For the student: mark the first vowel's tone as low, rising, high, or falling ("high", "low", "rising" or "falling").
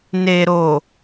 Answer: low